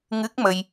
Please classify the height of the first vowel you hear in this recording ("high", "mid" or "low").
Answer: high